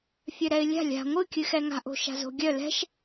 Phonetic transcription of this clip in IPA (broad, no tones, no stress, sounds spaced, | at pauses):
fʲ œ ɾ ɛ ɪ̯ lʲ a̤ lʲ a̤ ŋʷ ɨ kʲ ɨ x ɛ ŋ a̤ ʔ o̤ ʃ a̤ z o̤ ɡʲ œ l ɛ̤ ʃ